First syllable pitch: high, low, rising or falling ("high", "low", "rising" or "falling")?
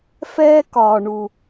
high